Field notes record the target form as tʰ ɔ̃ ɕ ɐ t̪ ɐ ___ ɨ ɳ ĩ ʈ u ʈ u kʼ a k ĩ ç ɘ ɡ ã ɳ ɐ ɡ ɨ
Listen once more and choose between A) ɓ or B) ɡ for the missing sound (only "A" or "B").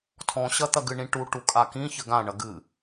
B